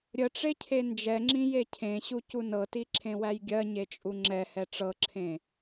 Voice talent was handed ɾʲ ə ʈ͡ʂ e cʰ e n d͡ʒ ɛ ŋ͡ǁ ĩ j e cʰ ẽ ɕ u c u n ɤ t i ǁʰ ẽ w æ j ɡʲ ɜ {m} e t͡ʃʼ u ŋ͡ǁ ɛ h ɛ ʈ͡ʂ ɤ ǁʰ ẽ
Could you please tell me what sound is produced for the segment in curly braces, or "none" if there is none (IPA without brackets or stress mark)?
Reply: ɲ